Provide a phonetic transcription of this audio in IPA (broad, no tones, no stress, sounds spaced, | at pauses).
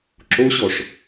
ǁ o ɕ ɔ ʂ